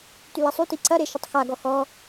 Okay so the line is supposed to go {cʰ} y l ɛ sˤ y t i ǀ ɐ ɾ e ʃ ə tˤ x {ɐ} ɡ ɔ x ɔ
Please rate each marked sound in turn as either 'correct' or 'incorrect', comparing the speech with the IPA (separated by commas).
incorrect, incorrect